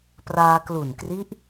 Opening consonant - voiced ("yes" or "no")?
no